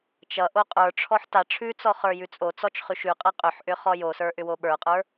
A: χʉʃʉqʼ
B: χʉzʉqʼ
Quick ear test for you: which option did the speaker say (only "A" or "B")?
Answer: A